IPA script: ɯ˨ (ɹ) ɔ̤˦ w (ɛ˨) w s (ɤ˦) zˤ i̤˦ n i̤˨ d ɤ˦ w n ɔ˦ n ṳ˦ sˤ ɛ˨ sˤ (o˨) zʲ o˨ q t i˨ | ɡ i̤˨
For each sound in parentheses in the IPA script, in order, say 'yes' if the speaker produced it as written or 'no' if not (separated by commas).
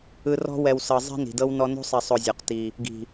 no, yes, no, yes